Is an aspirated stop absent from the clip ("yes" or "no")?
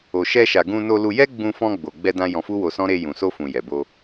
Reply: yes